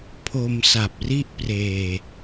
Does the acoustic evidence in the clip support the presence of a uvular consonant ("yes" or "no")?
no